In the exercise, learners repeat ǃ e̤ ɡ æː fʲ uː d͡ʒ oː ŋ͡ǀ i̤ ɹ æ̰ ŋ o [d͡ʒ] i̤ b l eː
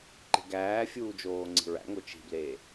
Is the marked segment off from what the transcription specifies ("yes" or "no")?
yes